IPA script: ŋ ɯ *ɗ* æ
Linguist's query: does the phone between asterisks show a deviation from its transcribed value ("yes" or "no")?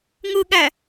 yes